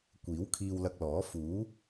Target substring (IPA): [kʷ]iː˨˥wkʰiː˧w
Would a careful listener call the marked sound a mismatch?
no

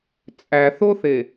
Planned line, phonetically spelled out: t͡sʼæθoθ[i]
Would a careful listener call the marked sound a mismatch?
yes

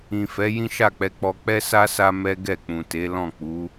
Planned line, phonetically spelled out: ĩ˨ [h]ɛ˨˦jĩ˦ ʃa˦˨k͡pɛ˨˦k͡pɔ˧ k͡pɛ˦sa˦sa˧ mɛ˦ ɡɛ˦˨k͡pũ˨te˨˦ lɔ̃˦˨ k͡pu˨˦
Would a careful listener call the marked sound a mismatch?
yes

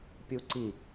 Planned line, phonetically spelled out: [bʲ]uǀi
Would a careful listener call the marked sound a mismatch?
yes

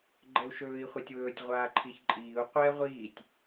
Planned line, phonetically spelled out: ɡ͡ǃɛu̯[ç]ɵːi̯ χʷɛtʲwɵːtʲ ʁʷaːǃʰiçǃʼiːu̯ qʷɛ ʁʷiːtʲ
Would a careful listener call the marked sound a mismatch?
yes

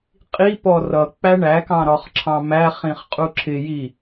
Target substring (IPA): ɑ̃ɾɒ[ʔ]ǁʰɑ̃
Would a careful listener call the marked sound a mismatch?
yes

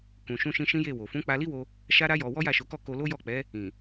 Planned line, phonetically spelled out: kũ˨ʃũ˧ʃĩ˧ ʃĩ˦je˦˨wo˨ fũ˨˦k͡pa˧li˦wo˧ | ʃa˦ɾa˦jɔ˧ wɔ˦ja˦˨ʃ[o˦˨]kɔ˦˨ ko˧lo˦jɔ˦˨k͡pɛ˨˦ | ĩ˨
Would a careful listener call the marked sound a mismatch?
yes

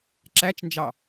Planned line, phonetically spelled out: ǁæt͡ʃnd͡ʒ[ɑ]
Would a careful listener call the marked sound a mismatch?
no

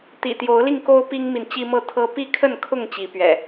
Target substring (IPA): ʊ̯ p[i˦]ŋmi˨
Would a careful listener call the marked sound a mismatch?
no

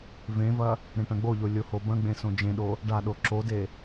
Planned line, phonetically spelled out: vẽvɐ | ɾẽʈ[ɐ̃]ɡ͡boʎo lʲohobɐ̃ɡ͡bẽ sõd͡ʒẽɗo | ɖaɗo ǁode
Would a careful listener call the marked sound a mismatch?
no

